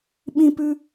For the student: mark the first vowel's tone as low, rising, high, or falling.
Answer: high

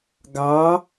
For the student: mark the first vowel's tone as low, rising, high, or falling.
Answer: rising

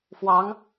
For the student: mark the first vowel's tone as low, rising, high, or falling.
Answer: rising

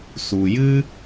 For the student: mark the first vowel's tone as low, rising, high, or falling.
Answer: low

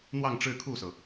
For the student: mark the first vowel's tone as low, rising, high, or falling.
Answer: falling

